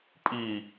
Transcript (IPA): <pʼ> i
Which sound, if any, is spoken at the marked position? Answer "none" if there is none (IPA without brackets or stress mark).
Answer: pʼ